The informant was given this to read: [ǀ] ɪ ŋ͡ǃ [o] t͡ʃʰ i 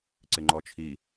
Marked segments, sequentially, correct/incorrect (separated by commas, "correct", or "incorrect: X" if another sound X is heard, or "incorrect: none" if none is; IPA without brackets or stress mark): correct, incorrect: ɔ